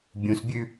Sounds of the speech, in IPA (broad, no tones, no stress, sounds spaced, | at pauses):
bʲ ũ s bʲ ʉ